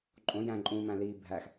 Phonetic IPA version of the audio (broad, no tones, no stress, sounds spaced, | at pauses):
ǃʼ õ j æ̃ ǃʼ ũ m æ̃ l iː bʱ æ x